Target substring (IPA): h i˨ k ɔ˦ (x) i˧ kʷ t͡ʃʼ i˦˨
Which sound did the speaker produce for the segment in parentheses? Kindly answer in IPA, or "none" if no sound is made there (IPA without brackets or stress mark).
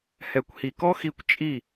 x